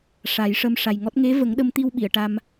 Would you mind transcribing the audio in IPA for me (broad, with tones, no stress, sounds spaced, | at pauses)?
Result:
ʂ a˨˩˦ j ʂ ə˧ m ʂ a˨˩ j ŋ ɔ˦˥ t̚ ŋ e˧˥ v ə˨˩˦ ŋ ɗ ə˧ m t̪ i˧ w ɓ i˨˩˨ ə̯ ʈ a˧ m